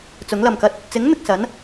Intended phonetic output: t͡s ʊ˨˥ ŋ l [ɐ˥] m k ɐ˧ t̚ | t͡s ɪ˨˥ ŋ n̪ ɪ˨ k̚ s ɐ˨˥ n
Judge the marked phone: incorrect: ɐ˨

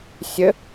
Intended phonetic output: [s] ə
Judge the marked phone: incorrect: sʲ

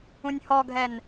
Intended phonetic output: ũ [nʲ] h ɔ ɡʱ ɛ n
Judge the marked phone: correct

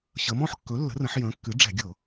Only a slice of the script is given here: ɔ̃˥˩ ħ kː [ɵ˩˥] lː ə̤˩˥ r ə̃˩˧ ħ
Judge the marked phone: correct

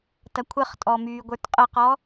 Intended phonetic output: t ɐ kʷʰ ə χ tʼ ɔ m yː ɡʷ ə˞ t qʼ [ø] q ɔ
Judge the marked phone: incorrect: ə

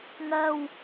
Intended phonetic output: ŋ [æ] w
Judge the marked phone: incorrect: ɜ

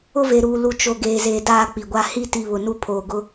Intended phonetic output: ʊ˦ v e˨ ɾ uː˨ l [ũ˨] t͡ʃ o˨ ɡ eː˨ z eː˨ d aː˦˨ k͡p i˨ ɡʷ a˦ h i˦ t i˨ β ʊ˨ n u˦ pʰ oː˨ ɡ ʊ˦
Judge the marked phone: incorrect: u˨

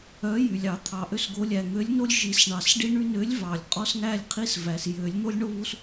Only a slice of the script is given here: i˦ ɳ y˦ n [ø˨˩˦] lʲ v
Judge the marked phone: incorrect: ø˨˥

